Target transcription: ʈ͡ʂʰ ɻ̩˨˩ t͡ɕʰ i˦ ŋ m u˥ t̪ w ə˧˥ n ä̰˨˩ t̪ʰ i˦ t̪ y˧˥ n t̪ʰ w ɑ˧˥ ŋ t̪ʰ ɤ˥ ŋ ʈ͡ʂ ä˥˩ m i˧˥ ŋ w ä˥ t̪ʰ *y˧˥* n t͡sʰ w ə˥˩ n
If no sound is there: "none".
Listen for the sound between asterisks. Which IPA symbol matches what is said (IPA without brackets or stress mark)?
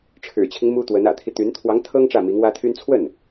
y˥